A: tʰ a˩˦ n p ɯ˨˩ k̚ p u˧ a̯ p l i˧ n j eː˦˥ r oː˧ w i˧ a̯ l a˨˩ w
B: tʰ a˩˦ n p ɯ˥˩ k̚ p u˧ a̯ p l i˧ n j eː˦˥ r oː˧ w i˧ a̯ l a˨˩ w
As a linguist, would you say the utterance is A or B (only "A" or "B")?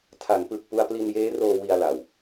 A